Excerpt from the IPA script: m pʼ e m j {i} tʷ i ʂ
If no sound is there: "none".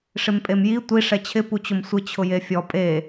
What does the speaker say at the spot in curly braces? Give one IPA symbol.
i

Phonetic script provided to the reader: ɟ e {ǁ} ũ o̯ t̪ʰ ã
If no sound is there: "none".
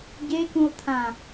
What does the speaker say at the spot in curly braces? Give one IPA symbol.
k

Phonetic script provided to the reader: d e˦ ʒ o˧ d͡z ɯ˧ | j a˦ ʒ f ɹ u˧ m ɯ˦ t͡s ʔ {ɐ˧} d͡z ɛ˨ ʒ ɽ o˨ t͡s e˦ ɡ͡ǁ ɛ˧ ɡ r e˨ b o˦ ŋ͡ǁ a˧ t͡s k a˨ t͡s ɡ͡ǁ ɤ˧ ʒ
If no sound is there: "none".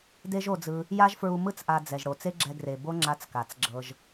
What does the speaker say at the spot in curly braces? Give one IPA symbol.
a˧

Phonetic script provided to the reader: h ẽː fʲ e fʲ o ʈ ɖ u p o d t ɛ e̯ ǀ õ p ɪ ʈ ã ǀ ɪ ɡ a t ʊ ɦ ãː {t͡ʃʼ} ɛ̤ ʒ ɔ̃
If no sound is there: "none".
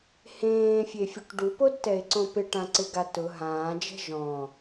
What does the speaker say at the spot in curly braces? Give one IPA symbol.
d͡ʒ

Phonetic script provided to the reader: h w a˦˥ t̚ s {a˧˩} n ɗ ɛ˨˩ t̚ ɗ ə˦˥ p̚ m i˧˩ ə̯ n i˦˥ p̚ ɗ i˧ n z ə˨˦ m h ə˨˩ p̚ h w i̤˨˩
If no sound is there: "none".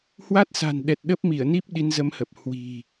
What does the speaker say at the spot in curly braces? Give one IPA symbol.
a̤˨˩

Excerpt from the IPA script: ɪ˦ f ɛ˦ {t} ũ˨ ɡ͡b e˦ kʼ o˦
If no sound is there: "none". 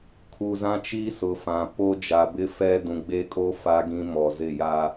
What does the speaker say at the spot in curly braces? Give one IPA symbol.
d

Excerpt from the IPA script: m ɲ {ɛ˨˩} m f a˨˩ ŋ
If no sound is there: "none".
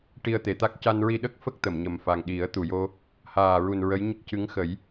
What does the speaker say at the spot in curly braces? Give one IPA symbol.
ə˨˩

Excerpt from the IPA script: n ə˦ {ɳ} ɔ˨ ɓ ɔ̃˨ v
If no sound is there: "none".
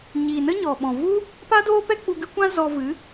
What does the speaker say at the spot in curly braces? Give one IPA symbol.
ɲ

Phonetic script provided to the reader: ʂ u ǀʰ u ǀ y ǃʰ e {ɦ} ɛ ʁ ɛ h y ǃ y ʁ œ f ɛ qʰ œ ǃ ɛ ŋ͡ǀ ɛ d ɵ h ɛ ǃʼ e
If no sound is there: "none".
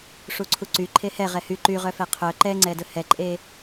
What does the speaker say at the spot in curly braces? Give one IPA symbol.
h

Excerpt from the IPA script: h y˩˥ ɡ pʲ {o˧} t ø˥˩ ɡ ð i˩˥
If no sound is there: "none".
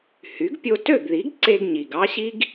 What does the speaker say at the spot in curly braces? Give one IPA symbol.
o˧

